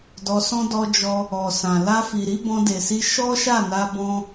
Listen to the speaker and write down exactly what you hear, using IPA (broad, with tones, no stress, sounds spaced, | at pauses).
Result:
d ɔ˧ s ɔ̃˦ d ɔ˧ d͡ʒ ɔ˧ | ɔ˨ s ã˨ l a˧ f i˨ ɾ i˨˦ b ɔ̃˧ d e˨ s i˧ ʃ ɔ˦ ʃ a˦˨ n a˧ b ɔ̃˧